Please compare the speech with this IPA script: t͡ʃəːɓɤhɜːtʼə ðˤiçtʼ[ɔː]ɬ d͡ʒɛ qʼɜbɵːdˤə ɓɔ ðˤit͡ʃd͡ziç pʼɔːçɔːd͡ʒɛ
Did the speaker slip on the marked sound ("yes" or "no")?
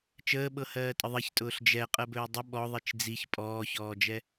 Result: yes